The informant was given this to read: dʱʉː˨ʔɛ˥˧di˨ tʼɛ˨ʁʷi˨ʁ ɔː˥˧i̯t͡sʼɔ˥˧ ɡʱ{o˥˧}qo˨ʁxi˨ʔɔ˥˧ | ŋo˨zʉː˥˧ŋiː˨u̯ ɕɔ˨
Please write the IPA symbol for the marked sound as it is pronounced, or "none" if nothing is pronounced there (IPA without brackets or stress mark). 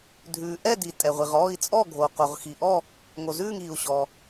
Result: o˨